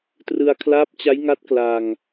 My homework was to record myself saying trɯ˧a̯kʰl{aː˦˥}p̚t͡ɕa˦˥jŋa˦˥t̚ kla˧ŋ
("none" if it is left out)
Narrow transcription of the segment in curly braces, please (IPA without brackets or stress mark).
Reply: aː˦˥